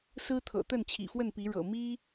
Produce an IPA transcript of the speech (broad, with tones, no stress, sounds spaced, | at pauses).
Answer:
s ɹ̩˦ t̪ʰ ɤ̰˨˩ t̪ ə˥˨ n t͡ɕʰ ḭ˨˩ f w ə˥˨ n p i˨˦ ɻ ɤ̰˨˩ m i˦